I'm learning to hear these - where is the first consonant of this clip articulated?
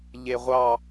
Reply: palate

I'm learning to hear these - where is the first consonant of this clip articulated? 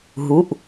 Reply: throat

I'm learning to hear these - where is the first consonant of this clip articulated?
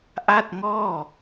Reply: throat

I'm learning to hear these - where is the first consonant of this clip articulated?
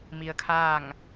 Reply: lips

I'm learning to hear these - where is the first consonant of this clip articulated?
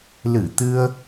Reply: tongue tip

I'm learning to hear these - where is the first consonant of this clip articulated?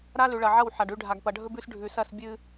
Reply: tongue tip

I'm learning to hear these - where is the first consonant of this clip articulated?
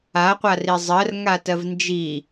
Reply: uvula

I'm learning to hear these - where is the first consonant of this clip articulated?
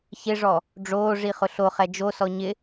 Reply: palate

